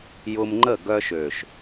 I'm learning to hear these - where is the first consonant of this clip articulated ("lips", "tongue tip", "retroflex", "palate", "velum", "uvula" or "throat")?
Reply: palate